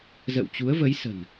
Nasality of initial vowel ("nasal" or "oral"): oral